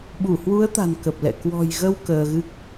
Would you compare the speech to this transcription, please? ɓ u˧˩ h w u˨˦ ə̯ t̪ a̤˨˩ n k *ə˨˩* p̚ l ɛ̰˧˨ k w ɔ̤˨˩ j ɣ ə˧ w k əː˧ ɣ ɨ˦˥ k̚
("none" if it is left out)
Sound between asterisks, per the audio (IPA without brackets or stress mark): ə˨˩